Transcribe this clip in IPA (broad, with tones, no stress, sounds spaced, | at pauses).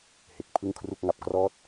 h e˨˩ k̚ pʰ ɯ˥˩ ŋ kʰ r u˥˩ k̚ ŋ a˨˩ p̚ k r ɔː˦˥ t̚